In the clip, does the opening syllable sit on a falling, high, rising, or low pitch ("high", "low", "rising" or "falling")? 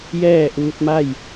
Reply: falling